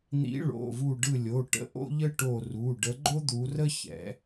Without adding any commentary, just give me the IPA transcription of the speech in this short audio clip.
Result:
n̪ḭ˨˦ɭo̰˩˧˩vu˧˩ ɖɯ˧˩lʲo˩˧˩ʈə̰˨˦ ʔo̰˥ʎə˥ ʈo˧˩ru˩˧˩ɖə˨˦ ɡ͡ǃo˥d̪u˨˦rə˥ çɛ̰˨˦

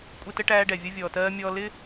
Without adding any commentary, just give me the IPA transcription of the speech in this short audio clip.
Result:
kʷʼɪ˧tə˧ʈæː˧ɖɛ˨ vʲʌ˧vʲɔː˨tɜː˧mʲɔː˧ lɪ˦

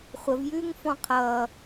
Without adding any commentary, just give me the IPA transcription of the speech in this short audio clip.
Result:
χʷəvjʉːŋfɔ̃ qʰʌː

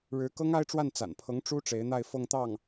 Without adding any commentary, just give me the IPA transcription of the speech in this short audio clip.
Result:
ɻɻ̩˧˥kɤ˥ŋa˥ɪ̯ʈ͡ʂwa˥˩n t͡sa̰˨˩npʰɤ˧˥ŋ ʈ͡ʂu˥ ʈ͡ʂe˧˥ɪ̯n̪a˥˧ɪ̯ fɤ˥˧ŋt̪ɑ˥˩ŋ

